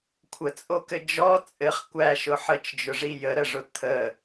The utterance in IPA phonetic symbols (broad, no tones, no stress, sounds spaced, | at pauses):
kʷʰ ə t͡sʼ o k ɘ d͡ʒ ɔ t͡sʼ ɘ χ kʷ æ ʃ ʊ ħ ə t͡ʃ d͡ʒ ʊ ʐ i j ə ɾ ə ʐ ʊ t̪ʰ ə